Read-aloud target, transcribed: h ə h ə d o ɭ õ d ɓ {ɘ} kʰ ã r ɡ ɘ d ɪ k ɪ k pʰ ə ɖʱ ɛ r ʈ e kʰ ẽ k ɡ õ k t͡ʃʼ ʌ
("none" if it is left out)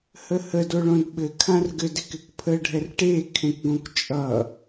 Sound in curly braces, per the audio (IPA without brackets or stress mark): ɘ